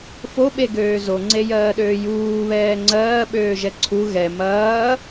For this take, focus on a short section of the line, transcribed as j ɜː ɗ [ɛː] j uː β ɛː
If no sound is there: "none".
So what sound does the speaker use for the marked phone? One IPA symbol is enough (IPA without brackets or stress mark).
øː